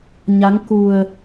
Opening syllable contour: rising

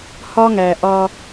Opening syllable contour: high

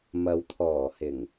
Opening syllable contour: low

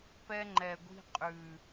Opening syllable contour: high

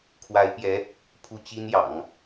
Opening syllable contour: rising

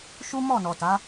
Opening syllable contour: high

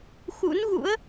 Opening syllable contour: rising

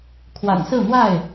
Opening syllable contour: low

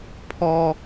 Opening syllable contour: low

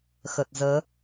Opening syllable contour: low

